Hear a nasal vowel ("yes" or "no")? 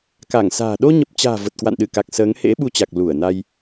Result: no